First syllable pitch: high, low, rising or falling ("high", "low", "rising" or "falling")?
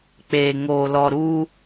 low